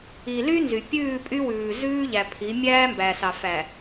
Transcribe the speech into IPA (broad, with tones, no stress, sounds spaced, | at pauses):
i˨ l y˦ n z y˨ pʲ ʉː˦˨ pʼ y˦ w ʉː˨ z ʉː˦ ʎ æ˨ pʰ i˨˦ mʲ æː˦ m b æ˨ s ɑ˨ f æ˨